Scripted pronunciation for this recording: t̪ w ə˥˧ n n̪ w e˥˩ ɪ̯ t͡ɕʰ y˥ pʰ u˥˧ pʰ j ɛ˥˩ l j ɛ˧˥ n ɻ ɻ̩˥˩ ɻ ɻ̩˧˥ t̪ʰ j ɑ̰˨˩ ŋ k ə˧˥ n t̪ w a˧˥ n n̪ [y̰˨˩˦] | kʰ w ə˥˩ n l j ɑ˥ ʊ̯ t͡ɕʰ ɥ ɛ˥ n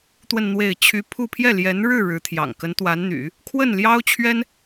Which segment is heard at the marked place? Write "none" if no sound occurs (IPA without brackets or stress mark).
y̰˨˩˦